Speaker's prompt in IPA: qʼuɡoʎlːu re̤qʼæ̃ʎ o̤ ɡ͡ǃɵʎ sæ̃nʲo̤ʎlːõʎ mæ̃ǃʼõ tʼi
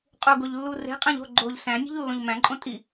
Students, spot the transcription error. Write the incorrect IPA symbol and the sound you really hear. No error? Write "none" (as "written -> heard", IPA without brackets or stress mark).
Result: ɵ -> o